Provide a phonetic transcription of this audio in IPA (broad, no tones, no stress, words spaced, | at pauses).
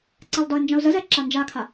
ǀɛlˠdɒɪ̯nd͡ʒɑ̃ʊ̯ zəzɛ ǁand͡ʒakʰa